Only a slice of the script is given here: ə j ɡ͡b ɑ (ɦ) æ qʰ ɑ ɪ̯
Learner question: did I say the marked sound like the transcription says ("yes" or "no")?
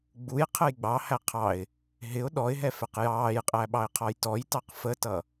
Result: no